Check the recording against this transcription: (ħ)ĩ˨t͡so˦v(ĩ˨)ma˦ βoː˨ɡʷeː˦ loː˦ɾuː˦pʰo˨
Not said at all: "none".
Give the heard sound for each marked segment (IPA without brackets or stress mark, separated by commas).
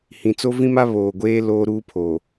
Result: h, ĩ˦